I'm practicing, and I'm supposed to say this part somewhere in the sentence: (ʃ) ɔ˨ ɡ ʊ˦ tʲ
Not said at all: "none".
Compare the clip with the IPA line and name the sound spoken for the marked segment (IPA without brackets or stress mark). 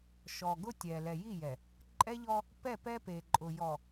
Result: ʃ